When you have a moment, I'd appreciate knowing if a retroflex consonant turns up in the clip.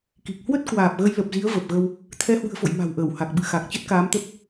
no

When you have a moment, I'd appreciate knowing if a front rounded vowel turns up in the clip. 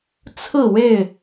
no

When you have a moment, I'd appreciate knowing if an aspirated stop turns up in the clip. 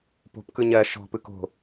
no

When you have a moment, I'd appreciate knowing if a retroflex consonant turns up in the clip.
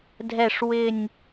yes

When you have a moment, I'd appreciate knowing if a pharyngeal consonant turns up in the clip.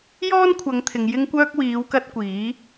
no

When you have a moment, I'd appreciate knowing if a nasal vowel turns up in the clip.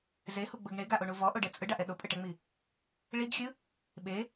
no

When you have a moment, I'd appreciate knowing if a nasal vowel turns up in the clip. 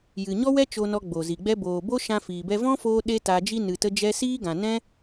yes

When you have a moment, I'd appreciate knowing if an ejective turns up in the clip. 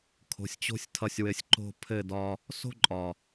yes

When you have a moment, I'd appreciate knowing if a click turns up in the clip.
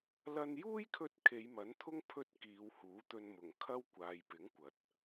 no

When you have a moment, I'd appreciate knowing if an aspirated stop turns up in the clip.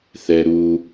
no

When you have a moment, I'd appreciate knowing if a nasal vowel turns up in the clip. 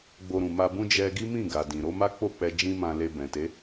yes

